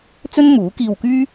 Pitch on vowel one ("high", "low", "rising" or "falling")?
high